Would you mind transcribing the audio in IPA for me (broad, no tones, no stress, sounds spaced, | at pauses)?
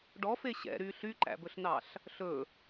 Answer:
ɖ ɔ f e ɕ ɛ̰ ɾ y ɬ y ǃ æ̰ b ɵ ɬ n ɑ ɬ | ɬ ɵ